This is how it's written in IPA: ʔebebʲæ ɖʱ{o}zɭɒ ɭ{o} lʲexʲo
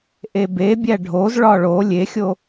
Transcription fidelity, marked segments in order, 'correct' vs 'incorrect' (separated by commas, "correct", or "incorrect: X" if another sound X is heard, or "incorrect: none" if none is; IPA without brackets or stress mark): correct, correct